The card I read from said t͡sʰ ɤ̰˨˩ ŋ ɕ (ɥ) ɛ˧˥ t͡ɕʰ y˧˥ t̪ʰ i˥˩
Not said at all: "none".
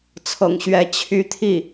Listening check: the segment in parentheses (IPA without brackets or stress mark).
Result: ɥ